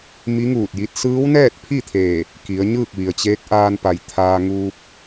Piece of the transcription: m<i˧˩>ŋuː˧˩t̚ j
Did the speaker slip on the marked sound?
yes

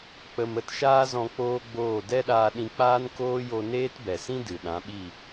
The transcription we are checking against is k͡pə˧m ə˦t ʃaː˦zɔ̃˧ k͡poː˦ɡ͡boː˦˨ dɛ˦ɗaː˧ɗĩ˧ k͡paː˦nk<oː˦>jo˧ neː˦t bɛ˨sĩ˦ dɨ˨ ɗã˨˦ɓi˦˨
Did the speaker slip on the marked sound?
no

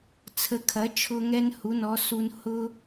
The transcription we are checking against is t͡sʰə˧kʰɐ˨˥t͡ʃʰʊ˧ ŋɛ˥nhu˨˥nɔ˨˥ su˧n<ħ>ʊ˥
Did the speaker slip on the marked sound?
yes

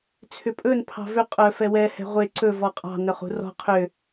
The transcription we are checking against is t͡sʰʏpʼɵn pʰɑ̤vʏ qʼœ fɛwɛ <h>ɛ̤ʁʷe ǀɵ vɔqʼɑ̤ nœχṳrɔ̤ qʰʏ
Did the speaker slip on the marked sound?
no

